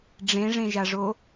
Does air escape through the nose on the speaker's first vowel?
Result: yes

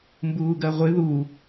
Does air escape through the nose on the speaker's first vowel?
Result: no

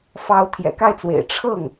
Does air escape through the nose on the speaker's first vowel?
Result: no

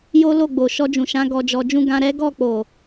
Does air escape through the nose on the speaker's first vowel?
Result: no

